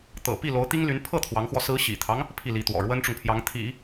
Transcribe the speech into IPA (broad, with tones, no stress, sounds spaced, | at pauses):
t̪ ɤ̰˨˩ p i˥˩ l o˧˥ ʊ̯ t̪ i˥ ŋ l y˧˥ n pʰ ɤ˥˩ t̪ʰ w ɑ˧˥ ŋ x w ɔ˧ s ɹ̩˧˥ ɕ ḭ˨˩ t̪ʰ ɑ˦ ŋ | pʰ i˥˩ l i˧˥ t̪ w ɔ̰˨˩ ɻ w ə˥ n ʈ͡ʂ ʊ˨ ŋ pʰ j ɑ˧˥ ŋ t̪ʰ ḭ˨˩˦